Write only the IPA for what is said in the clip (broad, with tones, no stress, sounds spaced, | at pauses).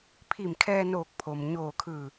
pʰ i˧˩ m kʰ ɛː˧ n oː˧˩ k̚ pʰ o˩ m ɲ oː˧˩ kʰ ɯː˧˩